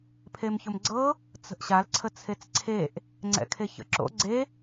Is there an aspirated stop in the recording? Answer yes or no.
yes